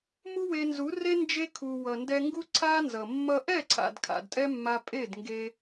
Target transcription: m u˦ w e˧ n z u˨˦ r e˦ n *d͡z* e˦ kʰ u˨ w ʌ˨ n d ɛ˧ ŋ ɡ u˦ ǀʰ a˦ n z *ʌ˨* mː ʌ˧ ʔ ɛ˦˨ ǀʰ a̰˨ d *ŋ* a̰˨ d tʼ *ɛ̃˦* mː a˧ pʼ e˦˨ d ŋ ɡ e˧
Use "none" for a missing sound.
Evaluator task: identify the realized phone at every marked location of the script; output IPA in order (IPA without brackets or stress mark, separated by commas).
d͡ʒ, ʌ˨, kʰ, ɛ˦